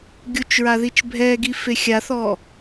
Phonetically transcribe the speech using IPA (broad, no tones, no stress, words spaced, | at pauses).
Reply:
ɡʲut͡ʃɹa ðit͡ʃbʱɛɡi fexʲaθɔ